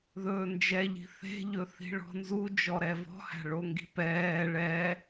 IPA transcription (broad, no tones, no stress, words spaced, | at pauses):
ðɵːnd͡ʒɛʎi̤ θe̤ʎɵ θi̤ɭɔ̤nzu d͡ʒɔɾɛvɔ̤hæ̤ ɭoŋɡi̤pɛː ɭɛ